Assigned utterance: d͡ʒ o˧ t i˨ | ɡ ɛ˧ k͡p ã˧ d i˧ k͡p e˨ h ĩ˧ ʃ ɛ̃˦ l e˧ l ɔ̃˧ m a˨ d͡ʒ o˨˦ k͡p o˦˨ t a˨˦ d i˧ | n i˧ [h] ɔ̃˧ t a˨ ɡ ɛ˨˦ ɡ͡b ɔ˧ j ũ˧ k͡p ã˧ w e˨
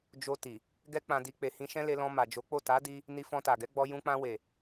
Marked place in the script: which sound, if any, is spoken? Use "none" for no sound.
f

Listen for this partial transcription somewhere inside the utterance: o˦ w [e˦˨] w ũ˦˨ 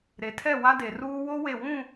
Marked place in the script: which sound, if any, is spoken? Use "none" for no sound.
e˦˨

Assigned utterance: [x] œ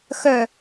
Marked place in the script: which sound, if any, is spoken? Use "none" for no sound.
x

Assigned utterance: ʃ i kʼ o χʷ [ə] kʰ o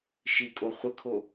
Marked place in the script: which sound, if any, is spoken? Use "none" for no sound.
ə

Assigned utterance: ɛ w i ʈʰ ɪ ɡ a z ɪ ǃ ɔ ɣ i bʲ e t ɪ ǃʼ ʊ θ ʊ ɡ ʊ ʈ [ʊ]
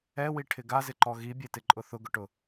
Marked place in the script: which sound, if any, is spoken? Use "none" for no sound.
ʊ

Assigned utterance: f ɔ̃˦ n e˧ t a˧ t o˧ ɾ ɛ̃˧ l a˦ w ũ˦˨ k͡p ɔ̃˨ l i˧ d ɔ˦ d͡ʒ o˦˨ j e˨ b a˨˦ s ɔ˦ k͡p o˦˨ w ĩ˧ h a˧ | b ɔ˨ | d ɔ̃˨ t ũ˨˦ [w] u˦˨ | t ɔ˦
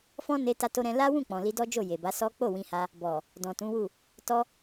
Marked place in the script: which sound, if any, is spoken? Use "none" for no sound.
w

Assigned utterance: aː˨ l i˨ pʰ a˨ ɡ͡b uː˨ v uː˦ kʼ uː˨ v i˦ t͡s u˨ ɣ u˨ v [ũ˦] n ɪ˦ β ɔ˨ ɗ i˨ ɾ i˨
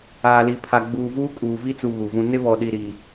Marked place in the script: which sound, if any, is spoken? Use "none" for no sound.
ũ˦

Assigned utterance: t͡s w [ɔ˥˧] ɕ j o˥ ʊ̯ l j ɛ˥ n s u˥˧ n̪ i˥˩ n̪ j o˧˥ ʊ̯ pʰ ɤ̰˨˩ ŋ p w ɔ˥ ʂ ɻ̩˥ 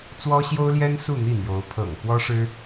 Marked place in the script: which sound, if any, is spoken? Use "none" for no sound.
ɔ˥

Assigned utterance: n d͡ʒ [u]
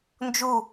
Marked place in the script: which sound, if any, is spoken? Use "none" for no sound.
u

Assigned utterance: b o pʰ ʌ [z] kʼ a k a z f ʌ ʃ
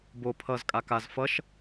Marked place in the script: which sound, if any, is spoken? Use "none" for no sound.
z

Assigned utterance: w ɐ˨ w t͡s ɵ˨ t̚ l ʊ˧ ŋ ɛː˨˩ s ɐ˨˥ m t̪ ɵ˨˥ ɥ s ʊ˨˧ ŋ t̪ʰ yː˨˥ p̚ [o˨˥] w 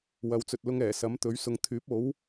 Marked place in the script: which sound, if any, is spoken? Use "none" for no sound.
o˨˥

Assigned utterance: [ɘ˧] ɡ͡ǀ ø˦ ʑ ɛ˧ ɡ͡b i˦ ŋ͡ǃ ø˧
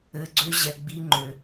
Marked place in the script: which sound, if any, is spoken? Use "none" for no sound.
ɘ˧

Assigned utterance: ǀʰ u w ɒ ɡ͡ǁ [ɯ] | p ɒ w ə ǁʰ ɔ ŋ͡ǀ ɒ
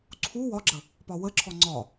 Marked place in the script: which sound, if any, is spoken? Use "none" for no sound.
ə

